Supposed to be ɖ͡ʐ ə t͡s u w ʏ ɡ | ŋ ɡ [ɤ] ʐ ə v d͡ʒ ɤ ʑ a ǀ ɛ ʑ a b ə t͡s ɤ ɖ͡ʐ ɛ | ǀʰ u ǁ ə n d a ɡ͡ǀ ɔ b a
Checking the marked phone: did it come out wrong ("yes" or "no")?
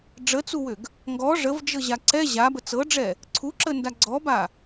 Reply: yes